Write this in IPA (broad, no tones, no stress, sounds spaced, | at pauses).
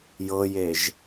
j ɤ j e ʒ